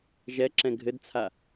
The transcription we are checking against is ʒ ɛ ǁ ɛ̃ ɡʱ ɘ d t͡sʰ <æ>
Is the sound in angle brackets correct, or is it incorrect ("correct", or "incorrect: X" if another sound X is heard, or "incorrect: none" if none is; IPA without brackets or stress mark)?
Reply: incorrect: a